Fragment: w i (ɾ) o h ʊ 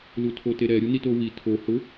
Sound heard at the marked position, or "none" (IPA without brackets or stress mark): tʰ